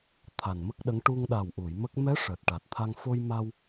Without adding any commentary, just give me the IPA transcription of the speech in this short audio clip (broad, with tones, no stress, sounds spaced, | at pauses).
t̪ʰ a˨˩ n m ə˦˥ k̚ ɗ ə˧˥ ŋ ʈ u˧ ŋ ɗ a˨˩ w ʔ u˨˩˨ j m ə˦˥ k̚ m ɛ˧˥ ʂ əː˨˩ t̚ ʈ a˨˩ t̚ t̪ʰ a˧ ŋ f o˧ j m a˧ w